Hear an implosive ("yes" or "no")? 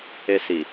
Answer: no